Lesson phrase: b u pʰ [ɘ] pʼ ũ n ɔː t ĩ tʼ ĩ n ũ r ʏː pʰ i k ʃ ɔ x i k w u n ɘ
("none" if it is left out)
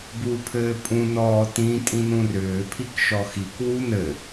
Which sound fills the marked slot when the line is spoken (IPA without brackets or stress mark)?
ɘː